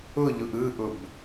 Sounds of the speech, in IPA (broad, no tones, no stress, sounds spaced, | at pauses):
ʊ ʎ ʊ ʔ ɯ ʔ ʊ b